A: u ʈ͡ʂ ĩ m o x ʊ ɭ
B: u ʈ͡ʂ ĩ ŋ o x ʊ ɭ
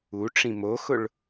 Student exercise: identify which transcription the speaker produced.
A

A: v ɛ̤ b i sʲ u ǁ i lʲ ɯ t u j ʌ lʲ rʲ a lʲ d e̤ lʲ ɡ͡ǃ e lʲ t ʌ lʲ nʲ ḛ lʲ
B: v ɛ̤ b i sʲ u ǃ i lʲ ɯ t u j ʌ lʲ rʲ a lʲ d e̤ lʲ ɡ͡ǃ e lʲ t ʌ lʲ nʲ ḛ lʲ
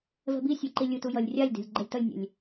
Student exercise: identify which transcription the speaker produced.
B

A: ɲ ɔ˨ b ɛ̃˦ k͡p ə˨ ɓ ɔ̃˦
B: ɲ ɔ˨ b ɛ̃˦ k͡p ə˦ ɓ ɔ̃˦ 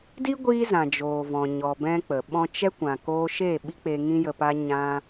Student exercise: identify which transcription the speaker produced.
A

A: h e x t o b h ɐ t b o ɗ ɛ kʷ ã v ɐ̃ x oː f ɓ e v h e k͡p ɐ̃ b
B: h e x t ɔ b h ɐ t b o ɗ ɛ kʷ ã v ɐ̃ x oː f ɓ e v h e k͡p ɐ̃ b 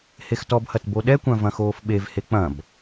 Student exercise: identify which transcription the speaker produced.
B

